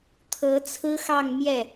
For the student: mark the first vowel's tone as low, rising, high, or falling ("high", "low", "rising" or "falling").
rising